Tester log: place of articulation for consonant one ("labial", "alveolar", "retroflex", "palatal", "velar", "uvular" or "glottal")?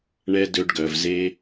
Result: retroflex